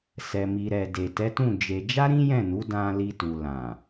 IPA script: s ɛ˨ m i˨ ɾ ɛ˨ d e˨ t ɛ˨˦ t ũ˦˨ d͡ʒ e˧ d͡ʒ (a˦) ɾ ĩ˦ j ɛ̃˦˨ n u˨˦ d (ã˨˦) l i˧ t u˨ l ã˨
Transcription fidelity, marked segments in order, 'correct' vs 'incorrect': correct, incorrect

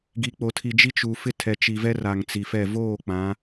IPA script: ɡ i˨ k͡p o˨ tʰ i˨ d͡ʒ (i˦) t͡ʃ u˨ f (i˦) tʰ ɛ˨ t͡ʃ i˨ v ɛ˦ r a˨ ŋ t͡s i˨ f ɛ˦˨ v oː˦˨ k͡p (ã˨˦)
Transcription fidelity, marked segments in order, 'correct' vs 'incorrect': correct, incorrect, correct

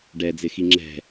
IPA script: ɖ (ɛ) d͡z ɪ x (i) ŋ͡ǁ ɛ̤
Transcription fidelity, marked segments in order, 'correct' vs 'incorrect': correct, correct

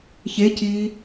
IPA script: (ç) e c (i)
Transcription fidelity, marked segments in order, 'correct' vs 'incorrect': correct, incorrect

